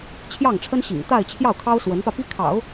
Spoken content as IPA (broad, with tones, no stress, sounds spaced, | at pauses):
t͡ɕʰ j ɑ˥˩ ŋ ʈ͡ʂʰ ə˥ n ɕ ḭ˨˩ ŋ t̪ a˥˧ ɪ̯ t͡ɕʰ j ɑ˥˩ ʊ̯ kʰ ɑ˥ ʊ̯ s w ə˧˥ n p ä˧ p i˥ kʰ ɑ̰˨˩˦ ʊ̯